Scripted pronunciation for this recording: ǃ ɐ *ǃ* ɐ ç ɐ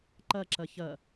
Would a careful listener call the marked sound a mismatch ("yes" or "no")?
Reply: yes